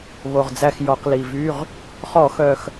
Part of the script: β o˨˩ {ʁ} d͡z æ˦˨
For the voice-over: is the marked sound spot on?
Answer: yes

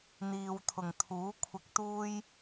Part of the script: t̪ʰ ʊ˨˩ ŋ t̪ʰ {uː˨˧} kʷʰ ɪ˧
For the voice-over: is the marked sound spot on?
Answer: no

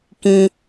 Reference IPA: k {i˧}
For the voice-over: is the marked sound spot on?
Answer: no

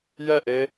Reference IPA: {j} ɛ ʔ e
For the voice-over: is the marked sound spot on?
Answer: yes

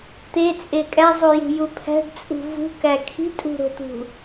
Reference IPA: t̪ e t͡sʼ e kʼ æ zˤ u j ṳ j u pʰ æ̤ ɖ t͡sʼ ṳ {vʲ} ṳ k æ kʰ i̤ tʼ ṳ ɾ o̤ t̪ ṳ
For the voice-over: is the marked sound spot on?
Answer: no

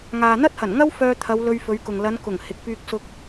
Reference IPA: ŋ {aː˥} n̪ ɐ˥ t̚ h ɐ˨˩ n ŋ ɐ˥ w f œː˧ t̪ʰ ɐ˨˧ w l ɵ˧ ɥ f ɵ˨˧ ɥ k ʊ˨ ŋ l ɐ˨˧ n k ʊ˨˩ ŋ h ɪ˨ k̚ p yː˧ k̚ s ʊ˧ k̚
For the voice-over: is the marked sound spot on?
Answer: no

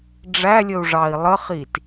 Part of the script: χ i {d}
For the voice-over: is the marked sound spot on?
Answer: no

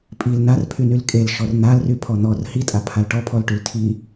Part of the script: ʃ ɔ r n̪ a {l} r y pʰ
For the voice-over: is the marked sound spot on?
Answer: yes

